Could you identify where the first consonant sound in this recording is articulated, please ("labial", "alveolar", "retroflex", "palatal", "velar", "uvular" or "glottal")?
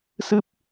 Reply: alveolar